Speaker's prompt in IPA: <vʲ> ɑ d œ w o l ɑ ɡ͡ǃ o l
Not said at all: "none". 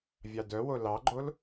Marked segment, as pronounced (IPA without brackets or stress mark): vʲ